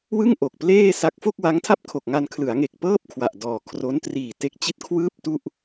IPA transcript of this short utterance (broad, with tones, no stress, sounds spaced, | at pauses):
w ɯ˥˩ ŋ ʔ o˨˩ k̚ p l eː˥˩ s a˦˥ k̚ f o˥˩ k̚ w a˦˥ ŋ tʰ a˥˩ p̚ kʰ o˨˩ k̚ ŋ a˧ n kʰ l ɯ˩˦ a̯ ŋ e˨˩ k̚ p ɤː˥˩ p̚ kʰ w a˨˩ ʔ d ɔː˨˩ kʰ r o˦˥ n t r iː˨˩ t e˦˥ k̚ t͡ɕ i˥˩ t̚ kʰ w ɯː˥˩ p̚ t u˥˩ ʔ